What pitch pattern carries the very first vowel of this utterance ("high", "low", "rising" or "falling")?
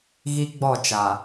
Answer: high